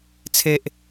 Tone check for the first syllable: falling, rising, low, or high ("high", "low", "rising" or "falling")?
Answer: high